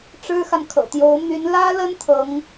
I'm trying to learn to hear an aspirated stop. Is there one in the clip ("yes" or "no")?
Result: yes